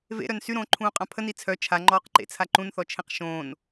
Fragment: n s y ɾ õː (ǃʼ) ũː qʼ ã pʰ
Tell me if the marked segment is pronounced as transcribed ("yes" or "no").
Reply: no